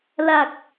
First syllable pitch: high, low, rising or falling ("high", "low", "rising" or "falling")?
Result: low